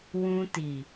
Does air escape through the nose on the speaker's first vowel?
yes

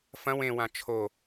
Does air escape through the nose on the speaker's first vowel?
yes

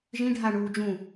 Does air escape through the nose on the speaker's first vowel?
yes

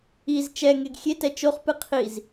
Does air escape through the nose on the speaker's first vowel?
no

